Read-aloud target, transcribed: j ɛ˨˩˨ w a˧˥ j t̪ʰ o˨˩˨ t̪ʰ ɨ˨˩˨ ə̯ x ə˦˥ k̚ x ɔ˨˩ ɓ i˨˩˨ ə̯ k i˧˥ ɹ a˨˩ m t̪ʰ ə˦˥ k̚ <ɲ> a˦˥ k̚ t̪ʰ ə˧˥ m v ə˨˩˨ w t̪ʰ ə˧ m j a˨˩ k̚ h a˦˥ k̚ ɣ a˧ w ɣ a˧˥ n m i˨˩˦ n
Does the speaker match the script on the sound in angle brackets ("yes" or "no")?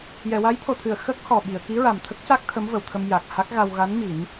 no